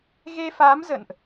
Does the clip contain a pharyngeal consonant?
no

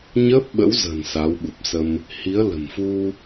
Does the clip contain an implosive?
yes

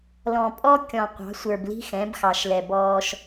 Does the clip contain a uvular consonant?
yes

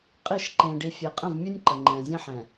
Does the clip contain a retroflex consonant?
yes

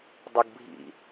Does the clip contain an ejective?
no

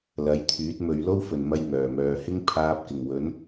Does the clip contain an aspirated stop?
yes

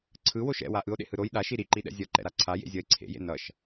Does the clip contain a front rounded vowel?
no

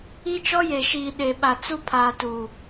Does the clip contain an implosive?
yes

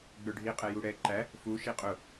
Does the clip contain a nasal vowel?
no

